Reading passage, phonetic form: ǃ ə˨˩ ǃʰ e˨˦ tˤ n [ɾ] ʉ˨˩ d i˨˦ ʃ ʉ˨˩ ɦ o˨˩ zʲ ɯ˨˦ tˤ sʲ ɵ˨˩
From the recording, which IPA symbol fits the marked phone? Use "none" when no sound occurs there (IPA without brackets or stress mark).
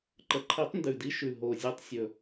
d